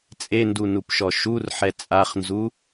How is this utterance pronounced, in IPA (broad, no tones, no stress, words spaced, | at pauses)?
t͡sʼendunupʃɔ ʃurħɛ t͡sʼaχnzu